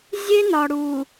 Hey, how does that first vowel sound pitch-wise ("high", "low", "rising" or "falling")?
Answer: high